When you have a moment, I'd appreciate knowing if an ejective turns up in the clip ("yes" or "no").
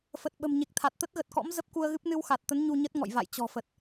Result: no